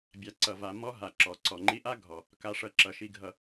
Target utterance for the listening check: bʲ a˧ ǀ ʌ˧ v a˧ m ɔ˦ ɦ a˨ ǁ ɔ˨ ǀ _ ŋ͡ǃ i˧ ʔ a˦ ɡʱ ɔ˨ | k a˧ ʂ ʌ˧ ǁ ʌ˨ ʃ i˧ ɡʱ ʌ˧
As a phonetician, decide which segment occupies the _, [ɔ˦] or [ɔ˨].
ɔ˨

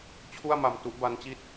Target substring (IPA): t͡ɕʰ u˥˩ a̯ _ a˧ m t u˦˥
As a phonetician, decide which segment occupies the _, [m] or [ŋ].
m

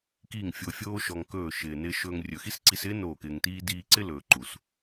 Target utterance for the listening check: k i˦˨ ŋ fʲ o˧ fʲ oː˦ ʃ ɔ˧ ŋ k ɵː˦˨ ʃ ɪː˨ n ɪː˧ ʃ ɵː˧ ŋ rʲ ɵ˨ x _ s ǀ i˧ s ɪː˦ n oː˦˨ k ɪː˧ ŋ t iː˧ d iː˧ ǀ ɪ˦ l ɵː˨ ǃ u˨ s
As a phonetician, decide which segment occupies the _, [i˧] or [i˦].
i˦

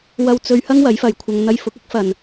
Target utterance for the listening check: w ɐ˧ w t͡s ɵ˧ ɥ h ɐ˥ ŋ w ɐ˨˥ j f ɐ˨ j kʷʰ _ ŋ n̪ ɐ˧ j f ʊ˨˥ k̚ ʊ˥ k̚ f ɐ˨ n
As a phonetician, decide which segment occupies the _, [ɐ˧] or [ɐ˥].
ɐ˧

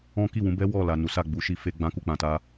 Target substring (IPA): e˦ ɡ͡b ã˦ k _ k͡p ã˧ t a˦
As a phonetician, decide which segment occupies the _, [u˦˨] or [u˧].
u˦˨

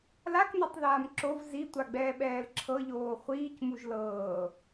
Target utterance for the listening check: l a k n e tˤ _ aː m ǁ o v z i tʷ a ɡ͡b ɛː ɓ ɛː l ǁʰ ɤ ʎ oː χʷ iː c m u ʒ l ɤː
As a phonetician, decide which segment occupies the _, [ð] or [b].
ð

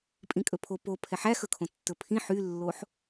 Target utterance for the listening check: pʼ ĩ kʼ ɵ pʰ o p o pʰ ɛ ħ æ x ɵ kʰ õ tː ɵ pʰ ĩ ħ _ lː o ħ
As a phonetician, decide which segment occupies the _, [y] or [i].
y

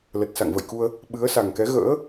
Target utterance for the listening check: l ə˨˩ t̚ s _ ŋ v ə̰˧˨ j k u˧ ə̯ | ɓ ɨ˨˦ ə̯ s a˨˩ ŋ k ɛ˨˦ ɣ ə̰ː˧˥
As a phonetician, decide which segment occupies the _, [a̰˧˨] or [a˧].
a̰˧˨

